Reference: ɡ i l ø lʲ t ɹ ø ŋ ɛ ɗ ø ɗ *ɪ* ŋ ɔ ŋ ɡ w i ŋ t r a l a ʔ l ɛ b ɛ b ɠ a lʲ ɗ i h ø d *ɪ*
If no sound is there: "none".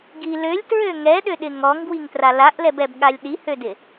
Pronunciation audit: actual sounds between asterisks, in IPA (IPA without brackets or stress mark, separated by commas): ɪ, ɪ